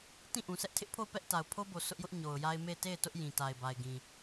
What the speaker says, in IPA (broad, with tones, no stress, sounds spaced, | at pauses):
t ĩ˦˨ ʔ ũ˨ sʰ ɛ˦ ʔ tʰ ɪ˦ ʔ pʰ o˦˨ ʊ̯ p ɛ˦ ʔ t a˨ ʊ̯ pʰ o˦ b o˨ s ʊ˦ ʔ j ʊ˦ ʔ ɲ o˨ ʊ̯ j a˦ ɪ̯ m e˦˨ ɪ̯ t e˦˨ ɪ̯ t ʊ˦ ʔ j ĩ˨ t a˨ ɪ̯ b a˨ ɪ̯ ɡ ĩ˨